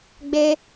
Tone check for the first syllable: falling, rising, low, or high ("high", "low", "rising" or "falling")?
high